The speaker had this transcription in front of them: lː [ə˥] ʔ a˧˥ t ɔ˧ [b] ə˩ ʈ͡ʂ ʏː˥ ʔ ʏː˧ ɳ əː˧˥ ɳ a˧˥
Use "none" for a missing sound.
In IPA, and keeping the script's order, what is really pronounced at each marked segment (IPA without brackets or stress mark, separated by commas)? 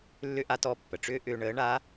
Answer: ʏ˥, pː